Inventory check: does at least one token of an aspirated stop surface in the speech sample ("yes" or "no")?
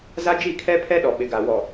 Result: yes